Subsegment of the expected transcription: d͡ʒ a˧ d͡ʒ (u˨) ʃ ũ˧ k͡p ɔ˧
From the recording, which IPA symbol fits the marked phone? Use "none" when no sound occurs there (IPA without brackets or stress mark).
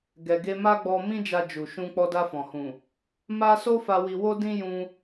u˨